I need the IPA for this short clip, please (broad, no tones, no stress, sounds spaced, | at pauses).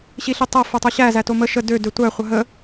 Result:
ɕ i ɬ i tˤ æ f o tˤ o ɕ æ z æ t o m ə ʃ ə d ø d ø tʷ æ χʷ ə ɦ ə